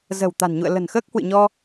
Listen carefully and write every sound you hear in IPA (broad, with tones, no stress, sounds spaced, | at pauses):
z ə̤˨˩ w t̪ a̤˨˩ n ɲ ṵ˧˨ ə̯ l ə̤˨˩ n x əː˦˥ k̚ h w ɨ̰˧˨ ɲ ɔ˧